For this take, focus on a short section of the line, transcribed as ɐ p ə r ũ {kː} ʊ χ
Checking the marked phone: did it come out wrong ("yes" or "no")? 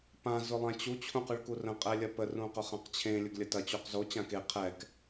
yes